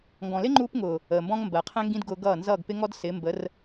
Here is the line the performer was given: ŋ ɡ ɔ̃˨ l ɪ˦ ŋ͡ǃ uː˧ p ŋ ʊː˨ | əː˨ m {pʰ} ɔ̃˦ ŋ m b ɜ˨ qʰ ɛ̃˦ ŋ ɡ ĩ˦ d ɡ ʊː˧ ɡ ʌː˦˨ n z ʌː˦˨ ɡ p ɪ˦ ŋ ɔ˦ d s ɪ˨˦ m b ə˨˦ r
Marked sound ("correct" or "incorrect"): incorrect